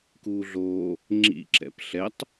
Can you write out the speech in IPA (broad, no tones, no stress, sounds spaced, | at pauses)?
k uː ɮ oː | ŋ͡ǁ ḭ ǁ ɛ̰ p ɬ ɛ tˤ